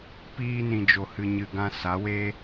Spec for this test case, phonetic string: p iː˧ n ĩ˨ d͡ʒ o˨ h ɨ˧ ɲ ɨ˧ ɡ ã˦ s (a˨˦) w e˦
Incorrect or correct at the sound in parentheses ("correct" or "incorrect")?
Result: correct